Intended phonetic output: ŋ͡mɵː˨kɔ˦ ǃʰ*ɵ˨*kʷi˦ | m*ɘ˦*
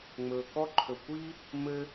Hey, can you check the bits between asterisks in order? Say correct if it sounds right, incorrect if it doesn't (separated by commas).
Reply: correct, correct